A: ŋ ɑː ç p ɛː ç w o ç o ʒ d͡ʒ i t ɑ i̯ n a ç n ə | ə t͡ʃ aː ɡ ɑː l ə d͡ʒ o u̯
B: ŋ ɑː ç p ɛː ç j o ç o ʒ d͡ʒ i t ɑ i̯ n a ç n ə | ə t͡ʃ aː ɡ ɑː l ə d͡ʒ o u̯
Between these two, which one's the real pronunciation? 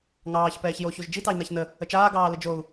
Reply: B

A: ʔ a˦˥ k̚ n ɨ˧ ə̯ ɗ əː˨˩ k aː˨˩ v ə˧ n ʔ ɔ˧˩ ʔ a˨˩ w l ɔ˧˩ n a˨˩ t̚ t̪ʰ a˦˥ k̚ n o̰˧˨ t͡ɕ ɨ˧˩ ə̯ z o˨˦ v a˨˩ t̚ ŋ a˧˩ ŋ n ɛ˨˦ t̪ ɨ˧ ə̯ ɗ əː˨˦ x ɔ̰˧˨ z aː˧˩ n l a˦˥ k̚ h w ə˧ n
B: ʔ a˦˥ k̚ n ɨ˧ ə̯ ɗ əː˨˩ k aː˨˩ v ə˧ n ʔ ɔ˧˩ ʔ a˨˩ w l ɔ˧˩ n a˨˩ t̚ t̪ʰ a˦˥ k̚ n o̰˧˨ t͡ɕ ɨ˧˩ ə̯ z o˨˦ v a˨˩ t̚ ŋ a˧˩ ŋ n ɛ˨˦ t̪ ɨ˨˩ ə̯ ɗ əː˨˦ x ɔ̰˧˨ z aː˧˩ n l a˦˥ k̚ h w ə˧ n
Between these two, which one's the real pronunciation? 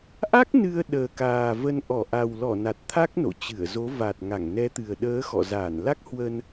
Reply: B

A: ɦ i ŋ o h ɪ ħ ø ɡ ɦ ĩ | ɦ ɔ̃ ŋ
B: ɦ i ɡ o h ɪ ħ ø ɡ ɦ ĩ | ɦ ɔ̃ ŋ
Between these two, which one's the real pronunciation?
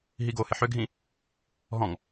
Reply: B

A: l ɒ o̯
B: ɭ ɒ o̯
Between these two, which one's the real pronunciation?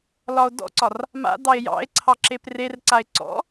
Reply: A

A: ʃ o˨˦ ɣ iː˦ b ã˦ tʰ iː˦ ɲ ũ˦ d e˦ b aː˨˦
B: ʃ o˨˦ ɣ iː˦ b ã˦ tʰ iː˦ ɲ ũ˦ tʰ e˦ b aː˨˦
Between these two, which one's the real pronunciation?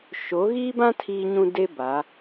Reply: A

